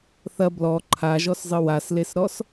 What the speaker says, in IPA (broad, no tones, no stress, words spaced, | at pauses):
θɐ blɔ ǃʰaʒɔszˤɨ waslesɾɔs